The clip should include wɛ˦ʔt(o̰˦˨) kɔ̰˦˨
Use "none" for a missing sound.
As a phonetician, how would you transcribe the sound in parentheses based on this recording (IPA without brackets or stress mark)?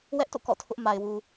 o̰˦˨